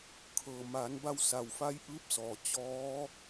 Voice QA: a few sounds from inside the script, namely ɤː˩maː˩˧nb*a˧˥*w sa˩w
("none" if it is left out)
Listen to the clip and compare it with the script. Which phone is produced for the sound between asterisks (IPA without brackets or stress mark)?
a˧